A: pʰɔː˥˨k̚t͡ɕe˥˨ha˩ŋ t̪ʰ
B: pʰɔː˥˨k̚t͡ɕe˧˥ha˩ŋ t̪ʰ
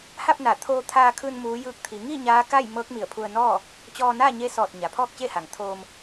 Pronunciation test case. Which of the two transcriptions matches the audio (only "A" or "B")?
A